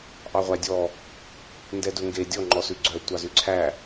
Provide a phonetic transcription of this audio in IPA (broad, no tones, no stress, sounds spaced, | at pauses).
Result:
ʔ ɑ ʁʷ æ dʲ ɔ | n d ɛ d ɵ ŋ ɡ e dʲ ɔ ŋ͡ǃ ɔ s ʉ ɡ͡ǀ œ tʷ ɑ z ʉ ǀʰ æ